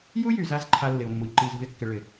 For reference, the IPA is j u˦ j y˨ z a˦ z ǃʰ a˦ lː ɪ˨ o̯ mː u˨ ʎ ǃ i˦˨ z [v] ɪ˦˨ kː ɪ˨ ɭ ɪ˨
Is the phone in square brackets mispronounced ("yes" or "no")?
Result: no